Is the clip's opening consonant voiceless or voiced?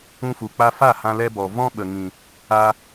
voiceless